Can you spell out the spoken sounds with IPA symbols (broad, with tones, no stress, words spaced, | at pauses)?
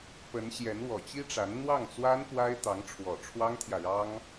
pə˧˥nɕjɛ˧˥n wɔ˨˩t͡ɕi˥ʈ͡ʂa˧˥n n̪wɑ˥˩ŋt͡swa˥n pwa˥ɪ̯t̪ɑ˧˥ŋ ʈ͡ʂʰwɔ˨˩ʈ͡ʂʰwɑ˥ŋt̪ʰjä˨ɻɑ˥ŋ